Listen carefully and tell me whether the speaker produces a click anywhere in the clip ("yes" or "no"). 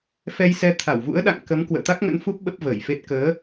no